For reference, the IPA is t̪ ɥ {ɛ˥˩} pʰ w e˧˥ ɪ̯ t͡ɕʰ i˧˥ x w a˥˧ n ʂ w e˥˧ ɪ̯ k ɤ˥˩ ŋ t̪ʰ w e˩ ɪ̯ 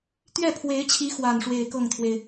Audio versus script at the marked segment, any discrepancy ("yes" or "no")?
no